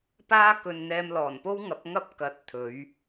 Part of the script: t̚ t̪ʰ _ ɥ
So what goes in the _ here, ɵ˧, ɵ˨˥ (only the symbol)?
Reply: ɵ˨˥